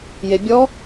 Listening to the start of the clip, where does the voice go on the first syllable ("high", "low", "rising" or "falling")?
low